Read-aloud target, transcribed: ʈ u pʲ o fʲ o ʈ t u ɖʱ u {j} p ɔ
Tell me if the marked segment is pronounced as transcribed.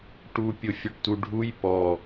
yes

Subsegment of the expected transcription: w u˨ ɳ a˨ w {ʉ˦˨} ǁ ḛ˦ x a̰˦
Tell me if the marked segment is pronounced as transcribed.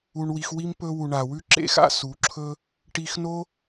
no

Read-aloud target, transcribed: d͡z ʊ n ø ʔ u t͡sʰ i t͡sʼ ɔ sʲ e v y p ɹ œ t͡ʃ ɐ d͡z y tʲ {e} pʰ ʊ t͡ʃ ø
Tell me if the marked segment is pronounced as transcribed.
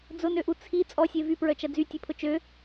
yes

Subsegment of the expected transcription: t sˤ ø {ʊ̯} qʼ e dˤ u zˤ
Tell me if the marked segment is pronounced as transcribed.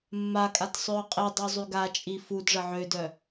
yes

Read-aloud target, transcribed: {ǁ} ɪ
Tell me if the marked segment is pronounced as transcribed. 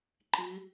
no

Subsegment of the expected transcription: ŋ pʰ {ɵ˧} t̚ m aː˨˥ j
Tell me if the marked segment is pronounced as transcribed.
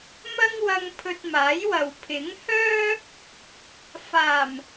yes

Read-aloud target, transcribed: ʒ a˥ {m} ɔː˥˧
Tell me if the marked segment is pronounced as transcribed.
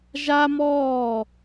yes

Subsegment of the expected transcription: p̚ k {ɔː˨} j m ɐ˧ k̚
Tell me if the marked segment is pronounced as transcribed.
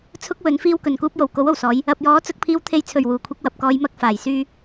no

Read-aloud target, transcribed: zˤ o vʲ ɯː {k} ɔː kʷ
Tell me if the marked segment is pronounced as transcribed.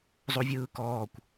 yes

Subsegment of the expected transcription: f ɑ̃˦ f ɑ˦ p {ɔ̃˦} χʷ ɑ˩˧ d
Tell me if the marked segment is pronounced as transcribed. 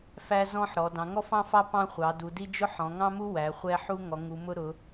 no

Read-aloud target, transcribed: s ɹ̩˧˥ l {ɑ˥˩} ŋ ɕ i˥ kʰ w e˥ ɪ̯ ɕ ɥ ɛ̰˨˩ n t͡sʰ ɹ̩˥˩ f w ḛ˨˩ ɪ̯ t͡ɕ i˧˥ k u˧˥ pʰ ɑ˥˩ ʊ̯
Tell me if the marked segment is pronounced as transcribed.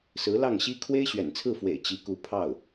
yes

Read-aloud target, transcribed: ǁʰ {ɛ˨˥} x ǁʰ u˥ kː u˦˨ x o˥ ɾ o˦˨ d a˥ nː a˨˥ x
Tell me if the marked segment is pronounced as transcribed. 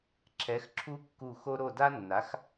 yes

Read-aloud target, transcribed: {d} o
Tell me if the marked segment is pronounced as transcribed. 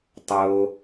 no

